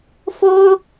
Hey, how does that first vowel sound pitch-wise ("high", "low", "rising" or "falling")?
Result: high